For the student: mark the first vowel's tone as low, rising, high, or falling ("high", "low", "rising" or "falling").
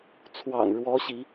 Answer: low